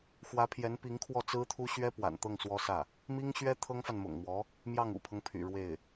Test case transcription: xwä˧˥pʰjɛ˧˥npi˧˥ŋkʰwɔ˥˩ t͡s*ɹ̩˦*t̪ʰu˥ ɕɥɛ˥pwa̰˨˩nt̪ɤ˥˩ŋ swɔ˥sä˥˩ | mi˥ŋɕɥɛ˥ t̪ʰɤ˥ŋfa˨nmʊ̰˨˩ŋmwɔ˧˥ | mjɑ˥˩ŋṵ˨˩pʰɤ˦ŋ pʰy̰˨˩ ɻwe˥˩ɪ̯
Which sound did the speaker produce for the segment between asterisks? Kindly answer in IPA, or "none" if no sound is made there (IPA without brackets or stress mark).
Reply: ɹ̩˥